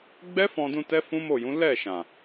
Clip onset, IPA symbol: ɡ͡b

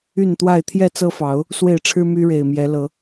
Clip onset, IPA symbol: y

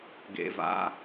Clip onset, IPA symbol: ɡ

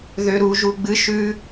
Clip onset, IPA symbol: ð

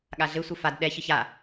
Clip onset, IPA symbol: ɠ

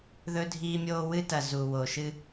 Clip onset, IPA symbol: ð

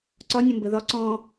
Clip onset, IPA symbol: ǀ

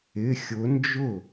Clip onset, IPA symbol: ɪ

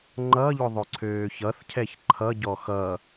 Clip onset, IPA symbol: ŋ͡ǃ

